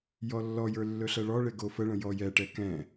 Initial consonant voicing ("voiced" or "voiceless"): voiced